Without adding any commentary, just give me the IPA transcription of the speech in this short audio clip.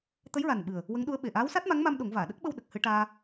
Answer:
t̪ə˧˥jɹa˨˩n ɓɨ˨˩ə̯ | wə˧˥ŋɗu˧˥ə̯ɓe˨˩ ʔaː˧˥wsa˦˥t̚ma˧˥ŋma˧m ɗo˨˩˦ŋvaː˨˩˨ ɗə˦˥k̚ɓə˧w ɗə˨˩k̚hɨ˧ʈaː˧

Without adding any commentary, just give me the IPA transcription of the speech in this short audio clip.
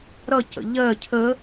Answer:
ɾʌ cə̰ʎɜ cʰə

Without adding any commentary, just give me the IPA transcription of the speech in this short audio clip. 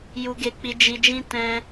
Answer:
ju˧ɡe˧k͡pi˧ d͡ʒi˧d͡ʒĩ˦ tɛ̃˧

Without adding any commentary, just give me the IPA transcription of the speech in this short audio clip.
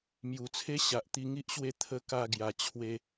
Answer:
mju˨˩t͡sʰe˦ ɕa˨ʔt̪i˧ŋi˦ʔɕwe˥˧ t̪ʰə˥˧ ka˧ɡja˨˩ t͡ɕʰwe˧

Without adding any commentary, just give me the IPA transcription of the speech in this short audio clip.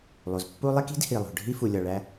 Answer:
lˠu˩zpːu˦lˠe˥k i̤˥d hi˩lˠo̤˩ ɖʱi˥fu˨lʲɒ˨ɭæ˦

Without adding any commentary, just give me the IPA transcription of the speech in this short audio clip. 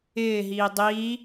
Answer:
ɪːɦiː dˤiː

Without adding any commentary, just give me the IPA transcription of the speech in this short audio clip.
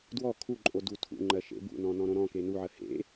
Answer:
dwɔ kʰuǃʼo dutʰṵŋ͡ǃɜ ʃḛbṵnɔ̃ nɔ̃ɾõɾɔ̃ke nuʕɜ hḛ

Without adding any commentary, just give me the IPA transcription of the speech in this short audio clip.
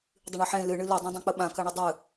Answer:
dˤɨɳɤħẽ lɨ ɳɨlo dˤõdˤõk͡pəɓã kaɳodˤɨ

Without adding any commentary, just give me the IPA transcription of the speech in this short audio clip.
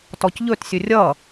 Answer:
tɔcʎɵtsʲɵ rʲʌ

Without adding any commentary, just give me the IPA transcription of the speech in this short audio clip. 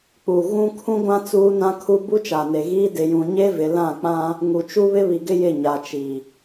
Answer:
k͡pu˨ ɣũ˦ kʰũ˦ɡʷã˦ t͡suː˦nã˦kʰu˦ bu˦t͡ʃa˨ne˨ɣiː˦ dɪ˨jũ˨ɲe˦vɪ˨ lã˦˨k͡pã˦ | ŋu˨t͡ʃu˦ βɪ˦βi˨ɡɪ˦ jɪ˦˨ɲa˨t͡ʃi˨

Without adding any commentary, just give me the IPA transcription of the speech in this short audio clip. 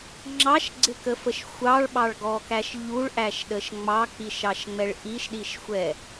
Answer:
ŋ͡ǁɑʃɡ͡ǀɪkəfəʃ xʷɑɭɓɑɭɡɔkæʃ ʎuɭʔæʃɗəʃ ŋ͡mɑk͡piʃɑʃŋ͡mɛɭ ʔiʃɗiʃxʷɛ

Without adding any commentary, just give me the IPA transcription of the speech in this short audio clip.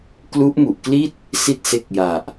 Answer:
klu˦˥ʔmu˨˩ʔkli˥˩t̚ | si˥˩t̚se˦˥k̚ ja˨˩ʔ

